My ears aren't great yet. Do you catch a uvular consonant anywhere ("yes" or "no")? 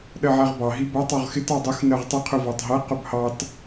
yes